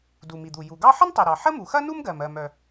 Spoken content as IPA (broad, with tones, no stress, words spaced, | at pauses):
du˩mi˩d̪u˩ ju˩ɡɑ˥ ħə˥ntˤi˩ɾɑ˩ ħə˥mu˩xɐ˥ nu˥mɡɜ˩mɜ˩mœ˩